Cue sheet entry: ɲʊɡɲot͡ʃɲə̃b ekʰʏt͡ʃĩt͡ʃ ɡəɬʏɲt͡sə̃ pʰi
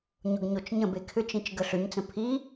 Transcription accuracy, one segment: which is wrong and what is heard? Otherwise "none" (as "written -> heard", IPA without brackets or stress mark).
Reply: none